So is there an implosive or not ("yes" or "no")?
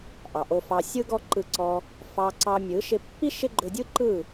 no